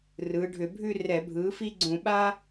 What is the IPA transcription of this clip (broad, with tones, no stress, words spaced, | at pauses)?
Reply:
rɯː˩˧ɖʱʏ˧˩˧bʱʉ˥˧ rɛ˧˩˧bʱɯː˩˥fi˥ɡ͡ǀũ˧˩˧ ɓa˥